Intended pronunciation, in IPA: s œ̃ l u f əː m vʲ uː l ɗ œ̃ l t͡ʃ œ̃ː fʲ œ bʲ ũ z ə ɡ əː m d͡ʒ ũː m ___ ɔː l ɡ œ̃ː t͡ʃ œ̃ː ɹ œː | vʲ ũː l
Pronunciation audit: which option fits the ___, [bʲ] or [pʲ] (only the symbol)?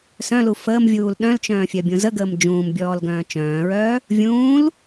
bʲ